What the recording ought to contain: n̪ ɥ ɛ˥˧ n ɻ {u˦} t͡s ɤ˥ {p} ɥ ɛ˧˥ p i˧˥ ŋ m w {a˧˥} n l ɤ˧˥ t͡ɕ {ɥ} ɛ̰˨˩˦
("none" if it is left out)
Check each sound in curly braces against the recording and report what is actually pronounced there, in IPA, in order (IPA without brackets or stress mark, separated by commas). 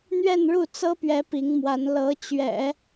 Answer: u˥˩, p, a˧˥, ɥ